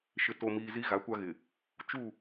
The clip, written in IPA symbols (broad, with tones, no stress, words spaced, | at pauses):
ʃɪ˨to˨miː˨ zi˦ɣa˨˦kʷa˦ɣɪ˨ | t͡ʃu˦˨